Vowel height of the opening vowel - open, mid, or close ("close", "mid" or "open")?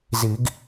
close